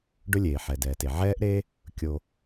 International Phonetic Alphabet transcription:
ɖ ɵ˦ lʲ eː˩ ħ ɛ˩ d ɛː˩ t e˩ ʕ ɛː˦ ʔ ɾ eː˦ | kʲ o˨

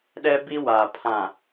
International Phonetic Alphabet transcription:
ɗ ɛ˦ b i˦ w a˨ pʰ ã˨

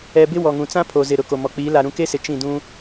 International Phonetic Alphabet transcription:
ɛ˨ b ɪ˦ w ɔ˨ ŋ ũ˨ t͡s ã˦ pʰ o˨ z ɪ˨ ɾ ʊ˨ k o˨ m ɔ˨ k͡p iː˨˦ l a˨ ɾ ũ˨ k e˦ s ɪ˨ t͡ʃ ĩ˦˨ d ũ˦

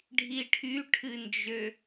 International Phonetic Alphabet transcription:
ɖʱ i ʈʰ y ʈʰ ɨ n d͡ʒ ø

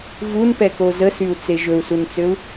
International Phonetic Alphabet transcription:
v u n p ɛ k o z ə s y u̯ t͡s e ʒ ɵ u̯ s u n t͡s ø u̯

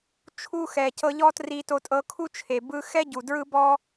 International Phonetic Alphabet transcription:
t͡ʃʰ u˧ x ɛ˨ c ɤ˧ ʎ ɔ˦ t r i˧ t o˧ tʼ ɤ˧ kʰ u˦ t͡ʃʰ e˨ b ɯ˧ x ɛ˦ ɟ u˨ d ɹ ɯ˦ b ɔ˦

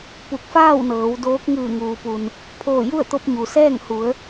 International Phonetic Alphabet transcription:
p u˧˩ k̚ f aː˥˨ w n ɤː˩˧ w d oː˧˥ k̚ ŋ ɯː˧˩ ŋ uː˩ p u˩ n | pʰ oː˧˩ j u˥˨ ə̯ t̪ o˧ p̚ ɲ u˩ s ɛː˥˨ ŋ h u˩˧ ə̯

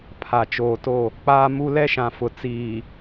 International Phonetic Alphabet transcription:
pʰ a˨ t͡ʃ oː˨ t o˦˨ | k͡p aː˦ m u˦ l ɛ˦ ʃ ã˨ f ʊ˨ t͡s iː˨

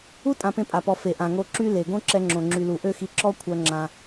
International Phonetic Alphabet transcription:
u˦ tʼ ã˧ p ẽ˧ pʼ a˨ p ɔ˨ f e˨ ʔ ã˨ ŋ o˧ ǁ y˦ l e˨ ɡ õ˦ ǁ ɛ˧ ŋ͡ǁ õ˨ ŋ͡ǁ y˨ l u˨ ʔ ø˦ x i˧ ǁ ɔ˦ kʷʰ œ˧ ŋ͡ǁ ã˧

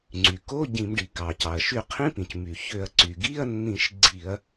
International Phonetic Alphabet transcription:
ŋ͡ǀ y˩ k o˧˥˧ ɟ ĩ˧˩˧ m ɖ i˩ k ɑ˩ c ɑ˩ ɐ̯ ʃ y˧˩˧ qʰ ĩ˧˥˧ p ĩ˩ c m y˩ ç ø˧˩˧ ɐ̯ ǀ y˩ ɡ i˧˥˧ ɐ̯ nː ĩ˧˩˧ ʃ ɡ͡ǀ i˧˩˧ ɐ̯

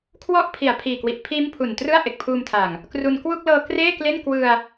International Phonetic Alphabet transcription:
kʰ w ɔ˦˥ ʔ pʰ i˨˩ a̯ pʰ iː˨˩ k w i˨˩ ʔ pʰ iː˦˥ m pʰ u˨˩ n t r ɯ˥˩ a̯ ʔ e˨˩ k̚ pʰ uː˧ m tʰ a˨˩ ŋ | k r u˧ n k w u˥˩ k̚ l ɤː˧ k r eː˥˩ k l e˥˩ n k w ɯ˧ a̯

